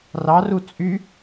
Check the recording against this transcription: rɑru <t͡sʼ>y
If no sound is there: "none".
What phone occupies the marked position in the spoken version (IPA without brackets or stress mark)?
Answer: t͡sʼ